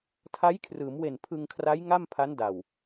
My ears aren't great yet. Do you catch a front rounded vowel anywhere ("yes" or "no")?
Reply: no